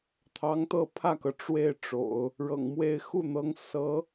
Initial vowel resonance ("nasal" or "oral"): oral